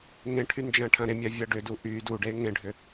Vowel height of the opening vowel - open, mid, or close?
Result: mid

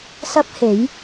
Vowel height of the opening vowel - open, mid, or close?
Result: open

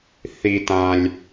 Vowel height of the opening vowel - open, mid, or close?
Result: close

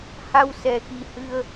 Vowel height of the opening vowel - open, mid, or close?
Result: open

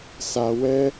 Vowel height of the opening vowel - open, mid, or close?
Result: open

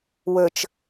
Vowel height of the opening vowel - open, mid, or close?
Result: mid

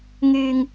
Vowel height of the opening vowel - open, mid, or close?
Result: close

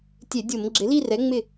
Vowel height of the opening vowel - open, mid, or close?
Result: mid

